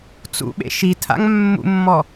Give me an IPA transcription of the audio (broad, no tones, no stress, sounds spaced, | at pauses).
t͡s ṵ ɓ ḛ ʃ i tʰ a̰ ŋ mː ṵ mː ɔ